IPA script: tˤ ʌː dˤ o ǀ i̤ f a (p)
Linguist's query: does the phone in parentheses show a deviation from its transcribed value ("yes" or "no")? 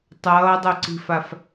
yes